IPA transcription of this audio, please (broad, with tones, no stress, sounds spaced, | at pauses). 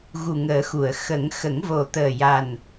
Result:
ɣ u˨˩ ŋ əː˨˩˦ x u˨˩˨ ə̯ x ə˨˩˦ ŋ x ə˨˩˦ ŋ v o˨˩ t̪ əː˨˩ j a˨˩ n